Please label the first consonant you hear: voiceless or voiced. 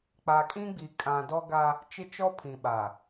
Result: voiceless